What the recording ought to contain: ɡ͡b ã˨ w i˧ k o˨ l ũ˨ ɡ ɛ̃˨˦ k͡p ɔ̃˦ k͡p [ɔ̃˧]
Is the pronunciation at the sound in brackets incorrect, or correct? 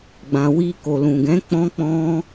incorrect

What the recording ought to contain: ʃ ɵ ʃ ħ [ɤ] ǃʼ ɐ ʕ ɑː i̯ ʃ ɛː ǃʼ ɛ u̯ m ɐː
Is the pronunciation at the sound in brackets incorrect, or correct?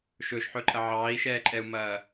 incorrect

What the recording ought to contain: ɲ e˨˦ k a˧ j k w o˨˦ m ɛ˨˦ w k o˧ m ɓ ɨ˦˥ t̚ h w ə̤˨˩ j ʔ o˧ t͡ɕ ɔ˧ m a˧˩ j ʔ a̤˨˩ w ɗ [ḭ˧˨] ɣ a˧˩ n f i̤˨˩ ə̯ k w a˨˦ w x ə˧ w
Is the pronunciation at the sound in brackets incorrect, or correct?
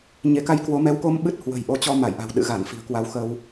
incorrect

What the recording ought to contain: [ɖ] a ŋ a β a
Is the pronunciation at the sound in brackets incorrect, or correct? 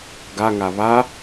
incorrect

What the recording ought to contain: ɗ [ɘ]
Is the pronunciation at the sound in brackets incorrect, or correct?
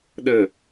correct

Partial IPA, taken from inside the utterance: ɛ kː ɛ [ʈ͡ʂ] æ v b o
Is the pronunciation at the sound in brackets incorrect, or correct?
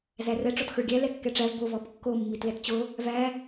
correct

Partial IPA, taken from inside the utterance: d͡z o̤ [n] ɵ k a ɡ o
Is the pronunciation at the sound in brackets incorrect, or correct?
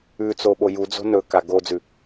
correct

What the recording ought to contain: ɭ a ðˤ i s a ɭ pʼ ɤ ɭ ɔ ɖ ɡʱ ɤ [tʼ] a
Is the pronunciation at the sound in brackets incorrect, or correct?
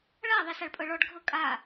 incorrect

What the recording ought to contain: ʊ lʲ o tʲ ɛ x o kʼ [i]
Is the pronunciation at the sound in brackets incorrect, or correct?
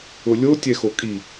correct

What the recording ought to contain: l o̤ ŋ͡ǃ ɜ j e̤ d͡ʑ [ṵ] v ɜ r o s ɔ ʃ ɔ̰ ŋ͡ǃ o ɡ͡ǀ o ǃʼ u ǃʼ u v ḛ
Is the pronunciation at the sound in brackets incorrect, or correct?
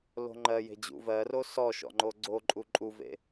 correct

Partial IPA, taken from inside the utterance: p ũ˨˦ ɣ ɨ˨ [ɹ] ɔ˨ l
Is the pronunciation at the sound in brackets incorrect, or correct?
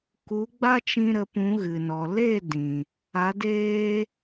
incorrect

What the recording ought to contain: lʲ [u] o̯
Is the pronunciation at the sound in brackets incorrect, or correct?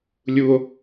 correct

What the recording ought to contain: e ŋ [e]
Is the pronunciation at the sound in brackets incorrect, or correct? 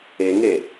correct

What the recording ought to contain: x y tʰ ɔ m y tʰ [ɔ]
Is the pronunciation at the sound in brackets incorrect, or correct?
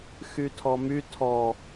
correct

